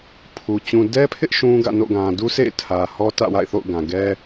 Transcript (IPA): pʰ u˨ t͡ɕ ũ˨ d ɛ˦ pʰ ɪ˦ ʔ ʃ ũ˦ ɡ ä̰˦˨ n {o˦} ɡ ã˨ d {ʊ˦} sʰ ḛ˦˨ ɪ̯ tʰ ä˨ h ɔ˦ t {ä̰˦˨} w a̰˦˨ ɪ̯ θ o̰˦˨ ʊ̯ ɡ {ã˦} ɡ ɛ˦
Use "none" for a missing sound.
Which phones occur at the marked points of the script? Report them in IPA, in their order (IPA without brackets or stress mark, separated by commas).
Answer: o̰˦˨, u˦, ä̰˦˨, ã˨